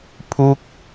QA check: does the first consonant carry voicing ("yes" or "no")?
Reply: no